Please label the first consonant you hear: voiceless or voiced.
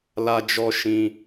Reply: voiced